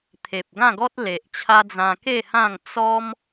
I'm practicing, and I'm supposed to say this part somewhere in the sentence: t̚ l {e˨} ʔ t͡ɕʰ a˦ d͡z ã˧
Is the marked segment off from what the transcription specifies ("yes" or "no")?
no